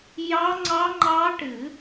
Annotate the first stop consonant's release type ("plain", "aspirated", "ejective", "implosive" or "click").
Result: click